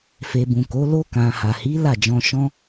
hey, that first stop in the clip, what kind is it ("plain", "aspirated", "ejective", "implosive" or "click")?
plain